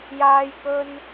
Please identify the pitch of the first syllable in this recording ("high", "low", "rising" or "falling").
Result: high